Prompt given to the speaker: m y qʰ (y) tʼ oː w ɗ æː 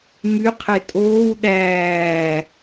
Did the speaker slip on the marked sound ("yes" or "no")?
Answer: yes